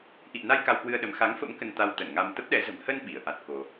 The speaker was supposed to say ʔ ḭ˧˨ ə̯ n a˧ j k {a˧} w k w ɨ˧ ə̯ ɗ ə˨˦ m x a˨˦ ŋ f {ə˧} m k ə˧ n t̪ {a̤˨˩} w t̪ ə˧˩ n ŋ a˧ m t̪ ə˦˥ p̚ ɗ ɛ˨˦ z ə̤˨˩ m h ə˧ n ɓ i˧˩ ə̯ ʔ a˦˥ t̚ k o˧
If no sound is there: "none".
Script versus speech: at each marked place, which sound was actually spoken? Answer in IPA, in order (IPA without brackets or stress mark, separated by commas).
a˧, ə̰˧˥, a˧